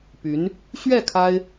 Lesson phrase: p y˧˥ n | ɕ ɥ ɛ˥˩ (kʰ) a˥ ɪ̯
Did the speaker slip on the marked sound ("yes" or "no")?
no